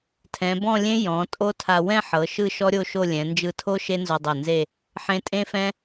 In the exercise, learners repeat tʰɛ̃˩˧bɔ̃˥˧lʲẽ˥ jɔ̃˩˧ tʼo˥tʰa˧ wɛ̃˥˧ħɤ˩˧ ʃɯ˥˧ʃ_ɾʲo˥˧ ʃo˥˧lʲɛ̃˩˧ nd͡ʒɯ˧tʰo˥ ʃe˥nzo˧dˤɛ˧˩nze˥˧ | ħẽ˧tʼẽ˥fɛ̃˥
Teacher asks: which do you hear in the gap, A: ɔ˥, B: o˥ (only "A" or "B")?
A